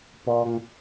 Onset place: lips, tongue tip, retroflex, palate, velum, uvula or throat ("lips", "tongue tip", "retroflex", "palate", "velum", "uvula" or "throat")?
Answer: lips